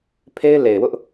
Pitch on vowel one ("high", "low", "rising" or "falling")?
high